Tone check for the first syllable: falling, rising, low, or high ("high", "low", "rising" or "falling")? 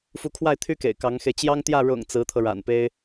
rising